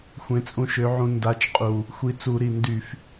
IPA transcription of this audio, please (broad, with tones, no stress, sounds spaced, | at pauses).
xʷ ẽ˨˥ t͡sʼ ũ˧ ʃ ø˨˥ ʕ ũ˧ n d a˨˥ t͡ʃ qʼ u˨˩ | xʷ i˧ t͡s u˧˩˧ ɾ i˨˩ n d y˧˩˧ f